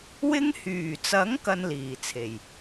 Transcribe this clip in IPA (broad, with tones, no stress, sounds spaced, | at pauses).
w ɪ˧ ŋ h yː˨˩ t͡s ɐ˨˥ ŋ k ɐ˧ n l iː˨˩ t͡sʰ e˨˩ j